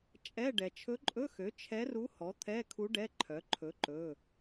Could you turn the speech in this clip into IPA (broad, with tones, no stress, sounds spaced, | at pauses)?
t͡ʃʼ ɛ˧˥˧ ɖ ɛ˩ t͡ʃʰ ɵ˧˥ ǃʼ ɵ˧˥˧ x ø˩˥ t͡ʃʰ ɛ˧˥ r u˧˥ h ɔ˩˥ t̪ʰ ɛ˧˥˧ kʰ u˧˥ ɖ ɛ˧˥˧ ǃʰ œ˩˥ ǃʰ ɵ˩˥ ǃ ɵ˩˧˩